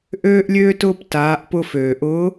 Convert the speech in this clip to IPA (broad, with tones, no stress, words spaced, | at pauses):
ʔøː˧ʔlʲøː˧tʊː˧p taː˩˧ʔpʊ˧ føː˩ʔʊː˧˥